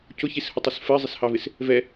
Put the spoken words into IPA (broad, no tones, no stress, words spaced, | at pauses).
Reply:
cʊçishʊtˤəs fɜzˤɪshɑvɪs | vɛ